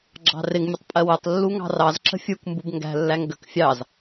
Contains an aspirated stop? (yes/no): no